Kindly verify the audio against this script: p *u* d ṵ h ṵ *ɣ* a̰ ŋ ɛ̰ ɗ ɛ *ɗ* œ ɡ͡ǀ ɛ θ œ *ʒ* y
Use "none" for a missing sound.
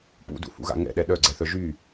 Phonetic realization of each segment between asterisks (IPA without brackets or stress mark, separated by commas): ṵ, ɣ, ɗ, ʒ